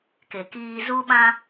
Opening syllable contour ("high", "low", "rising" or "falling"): low